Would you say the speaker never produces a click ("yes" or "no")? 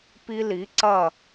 no